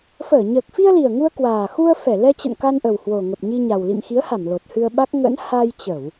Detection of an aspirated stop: absent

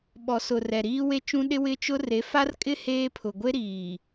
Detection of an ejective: present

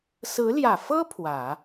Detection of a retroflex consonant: absent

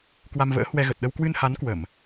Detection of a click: absent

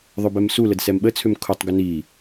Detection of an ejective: absent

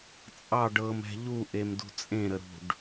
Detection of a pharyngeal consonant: absent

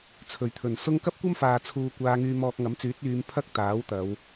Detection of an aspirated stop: present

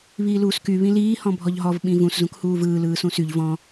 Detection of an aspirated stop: absent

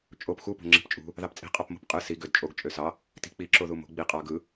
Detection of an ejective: present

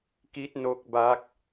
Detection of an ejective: absent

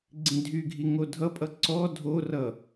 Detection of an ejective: present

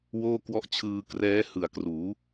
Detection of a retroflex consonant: absent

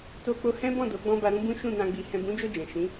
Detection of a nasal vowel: present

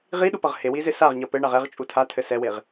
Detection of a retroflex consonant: present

